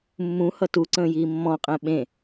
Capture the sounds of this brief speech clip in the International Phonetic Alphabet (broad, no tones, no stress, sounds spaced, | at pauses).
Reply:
mː ũ h ʌ t u ǀ ə̃ː j iː mː ɔ̃ qʼ ɛ̃ ɓ ẽ